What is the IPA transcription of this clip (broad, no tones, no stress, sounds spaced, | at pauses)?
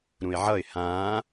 ɾ ũ ɪ̯ ʕ ʌ ɪ̯ h ãː